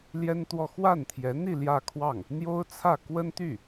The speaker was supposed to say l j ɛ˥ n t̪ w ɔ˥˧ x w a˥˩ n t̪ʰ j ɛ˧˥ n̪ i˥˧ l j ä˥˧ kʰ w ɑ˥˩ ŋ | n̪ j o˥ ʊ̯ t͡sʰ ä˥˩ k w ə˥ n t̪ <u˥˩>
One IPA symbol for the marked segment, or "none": y˥˩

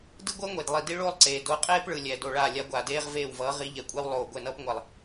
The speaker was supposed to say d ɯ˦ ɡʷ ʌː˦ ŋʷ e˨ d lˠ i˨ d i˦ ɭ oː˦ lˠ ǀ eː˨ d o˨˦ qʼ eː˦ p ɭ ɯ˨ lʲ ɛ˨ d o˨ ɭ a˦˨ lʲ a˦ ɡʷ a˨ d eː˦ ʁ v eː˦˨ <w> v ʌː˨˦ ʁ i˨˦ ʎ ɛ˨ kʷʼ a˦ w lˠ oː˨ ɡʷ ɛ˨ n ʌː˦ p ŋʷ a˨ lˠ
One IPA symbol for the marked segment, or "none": w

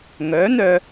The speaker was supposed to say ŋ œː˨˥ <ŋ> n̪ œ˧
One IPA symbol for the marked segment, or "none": none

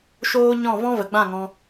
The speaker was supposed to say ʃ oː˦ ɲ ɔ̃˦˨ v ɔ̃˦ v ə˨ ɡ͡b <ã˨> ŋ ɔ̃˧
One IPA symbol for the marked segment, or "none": ã˦˨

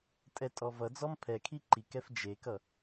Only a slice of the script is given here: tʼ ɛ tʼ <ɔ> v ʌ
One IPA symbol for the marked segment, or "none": ɔ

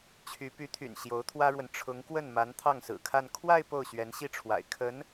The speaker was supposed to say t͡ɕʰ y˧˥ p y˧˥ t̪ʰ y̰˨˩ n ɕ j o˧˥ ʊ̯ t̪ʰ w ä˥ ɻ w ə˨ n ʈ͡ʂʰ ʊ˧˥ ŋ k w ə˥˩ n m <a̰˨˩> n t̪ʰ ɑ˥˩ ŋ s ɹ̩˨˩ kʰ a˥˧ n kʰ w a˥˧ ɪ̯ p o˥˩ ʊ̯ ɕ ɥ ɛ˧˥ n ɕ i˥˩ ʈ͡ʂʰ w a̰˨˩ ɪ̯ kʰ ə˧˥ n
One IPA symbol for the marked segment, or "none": a˧˥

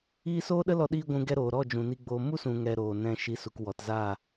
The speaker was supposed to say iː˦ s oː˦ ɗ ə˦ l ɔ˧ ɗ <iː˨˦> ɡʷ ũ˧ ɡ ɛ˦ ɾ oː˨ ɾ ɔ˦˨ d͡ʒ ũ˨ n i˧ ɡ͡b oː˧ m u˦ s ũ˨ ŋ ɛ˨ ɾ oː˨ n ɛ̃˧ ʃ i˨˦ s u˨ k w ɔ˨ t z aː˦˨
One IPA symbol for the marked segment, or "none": iː˧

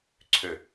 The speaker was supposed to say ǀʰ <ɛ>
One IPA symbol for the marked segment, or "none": ø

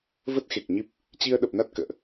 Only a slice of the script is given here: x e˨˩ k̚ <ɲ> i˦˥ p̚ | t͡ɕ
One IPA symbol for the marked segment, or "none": ɲ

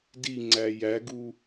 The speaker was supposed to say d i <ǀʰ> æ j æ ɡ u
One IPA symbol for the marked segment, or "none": ŋ͡ǀ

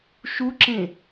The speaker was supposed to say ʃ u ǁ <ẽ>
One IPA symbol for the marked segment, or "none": ẽ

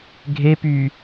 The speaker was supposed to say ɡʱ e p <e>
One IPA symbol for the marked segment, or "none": y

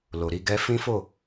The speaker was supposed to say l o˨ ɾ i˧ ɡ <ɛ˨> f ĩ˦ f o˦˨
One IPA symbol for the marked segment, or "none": ɛ˦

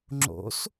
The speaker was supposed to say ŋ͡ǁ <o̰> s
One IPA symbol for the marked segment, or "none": o̰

